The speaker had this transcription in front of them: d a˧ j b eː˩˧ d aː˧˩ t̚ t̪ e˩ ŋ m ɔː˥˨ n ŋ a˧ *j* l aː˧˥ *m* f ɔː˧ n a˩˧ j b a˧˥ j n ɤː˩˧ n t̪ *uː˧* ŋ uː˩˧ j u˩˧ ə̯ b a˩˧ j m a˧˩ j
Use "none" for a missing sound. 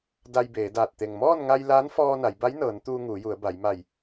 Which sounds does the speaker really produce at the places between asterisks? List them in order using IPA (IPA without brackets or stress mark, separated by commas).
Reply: j, n, uː˧